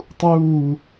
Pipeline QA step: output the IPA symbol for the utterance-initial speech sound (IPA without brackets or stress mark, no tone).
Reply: tˤ